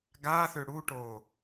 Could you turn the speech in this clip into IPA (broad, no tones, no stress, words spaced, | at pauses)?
ɡaθʏ ɽuʈo